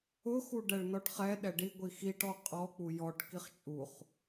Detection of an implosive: present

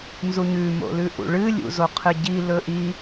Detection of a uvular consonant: present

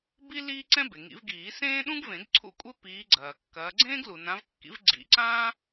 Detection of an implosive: present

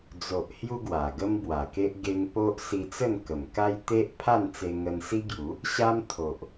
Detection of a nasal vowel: absent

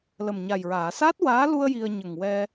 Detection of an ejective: absent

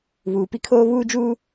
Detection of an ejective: absent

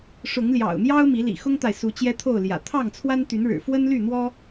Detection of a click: absent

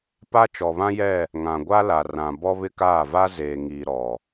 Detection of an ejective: absent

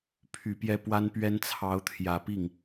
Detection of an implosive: absent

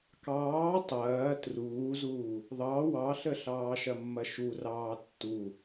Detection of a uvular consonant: absent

